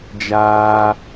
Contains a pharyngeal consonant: no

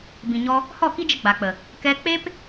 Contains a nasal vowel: yes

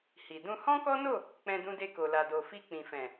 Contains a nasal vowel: yes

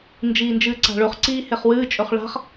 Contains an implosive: no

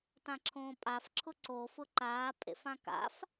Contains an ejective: yes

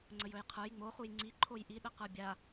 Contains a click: yes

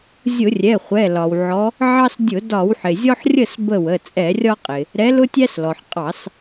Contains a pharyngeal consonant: yes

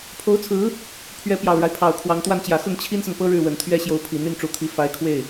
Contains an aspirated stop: yes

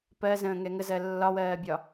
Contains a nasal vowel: yes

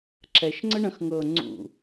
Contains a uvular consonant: no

